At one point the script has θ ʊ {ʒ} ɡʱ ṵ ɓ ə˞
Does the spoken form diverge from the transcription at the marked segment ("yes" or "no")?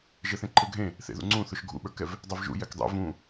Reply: yes